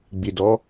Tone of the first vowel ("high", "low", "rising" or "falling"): low